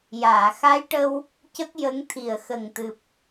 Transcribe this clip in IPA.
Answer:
j aː˨˩˨ x a˧˥ j ʈ ə˧ w | c ə˦˥ k̚ j ə˧˥ ŋ t̪ʰ i˨˩ ə̯ x ə˨˩ ŋ t̪ ɨ˨˩ p̚

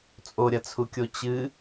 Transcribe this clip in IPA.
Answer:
t͡sʼ o ɾʲ ɐ t͡sʰ u kʲ o t͡ɕ ɨ

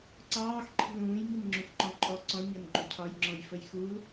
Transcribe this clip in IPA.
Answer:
ǀ ɑː x ǃʰ i̤ l ũː j m i n ŋ͡ǁ ũ x ǃ ɔ̃ ǃʼ ɔ ǀ ɔ̃ ɲ ʌ n ɡ͡ǃ u cʰ ɒ j ŋ͡ǁ ɔ̃ j f ə j x u l

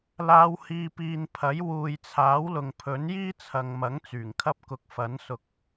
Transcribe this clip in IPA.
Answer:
l aː˨˧ w h iː˨ p iː˨ n pʰ ɐ˨˥ j w uː˨ j t͡sʰ aː˨˥ w l ʊ˨ ŋ pʰ ɵ˨˥ n j iː˥ t͡sʰ ɐ˨ ŋ m ɐ˨˥ ŋ t͡s yː˨˩ ŋ kʰ ɐ˧ p̚ k ʊ˨ k̚ f ɐ˨˥ n s ʊ˨ k̚

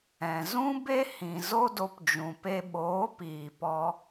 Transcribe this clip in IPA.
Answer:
ɛ̃˨ z ũ˦ b e˦ h ĩ˨ z o˦ d o˧ p d͡ʒ ũ˨ p e˧ ɓ oː˨˦ p iː˨ p ɔ˧

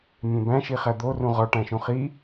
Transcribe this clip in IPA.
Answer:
mʲ ẽ b æ̃ ʃ i χ æ d̪ o r ũ ʁ ɒ ʈ æ̃ ʃ ũ χ i

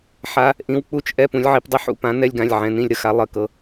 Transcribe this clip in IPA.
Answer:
ħ a˧˥˧ | ʔ ĩ˨˥ w k͡p u˦˨ t͡ʃ ʔ ɛ˧˥˧ p ũ˩˧ lʲ ʕ i˩˧ p dˤ i˨˥ ħ ṵ˩˧ p ã˨˥ n ɛ˧˥˧ lʲ ɡ ã˩˧˩ lʲ ʕ ɛ̃˩˧˩ n ĩ˦˨ lʲ ɾ ə˧˥˧ x a˨˥ lˠ ə˩˧˩ k ɤ˩˧

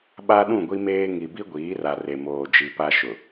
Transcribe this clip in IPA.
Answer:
ɓ a˦ ɗ ũ˦˨ ɡʷ i˦ m eː˦ ŋ i˨ b i˦ ɡʷ iː˨˦ r a˨ r e˨ m oː˨ d͡ʒ i˨ p a˦ ʃ ʊ˨

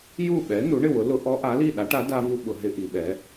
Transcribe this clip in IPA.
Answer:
j u˥˨ ɓ ɛ˨˥ n u˨˥ ɳ ɪ˥˨ w ʊ˨˥ l ʊ˦˥ ʔ ɔ˦˥ ʔ a˨˥ l i˥˨ ɗ a˨˥ ʈ a˨˥ d a˦˥ v u˦˥ ɓ ʊ˩˧ ɦ ɪ˦˥ ʔ i˩˧ ɓ ɛ˨˥

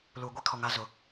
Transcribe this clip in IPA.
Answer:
l uː˨ ɡʷ i˦ kʰ ɔ˨ ŋ a˨˦ z ʊ˨

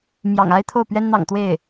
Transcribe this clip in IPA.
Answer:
m j ɑ̰˨˩ ŋ a˥ ɪ̯ t̪ʰ o˥˩ ʊ̯ p ɥ ɛ˥ n n̪ ɑ̰˨˩ ŋ t̪ w e˥˩ ɪ̯

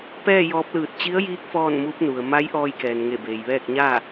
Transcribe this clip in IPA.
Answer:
p ɛː˥˨ j ɔː˧˥ p̚ l ɯː˧˩ t̚ t͡ɕ i˧˥ ə̯ j iː˧˥ k̚ f ɔː˥˨ n m uː˧˥ p̚ n u˩ ə̯ m a˧˥ j ʔ ɔː˧ j k ɛː˩ n ŋ e˧˩ b eː˩ j ʋ ɛː˥˨ k̚ ɲ aː˥˨

